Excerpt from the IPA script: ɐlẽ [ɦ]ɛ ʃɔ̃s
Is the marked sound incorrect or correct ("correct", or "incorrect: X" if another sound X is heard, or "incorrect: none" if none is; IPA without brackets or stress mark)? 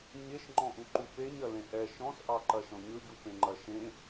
incorrect: ʔ